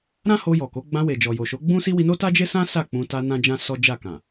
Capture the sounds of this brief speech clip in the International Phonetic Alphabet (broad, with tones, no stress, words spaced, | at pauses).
ɾã˦ ho˧jɔ˨ko˨˦ ɡ͡bã˧we˨d͡ʒɔ˨ jo˨ʃo˨˦ɡ͡bũ˦si˦ wi˧no˦ta˦ d͡ʒe˦sã˦ sa˦˨k͡pũ˧ ta˧ nã˦d͡ʒã˦sɔ˦d͡ʒa˦˨ kã˨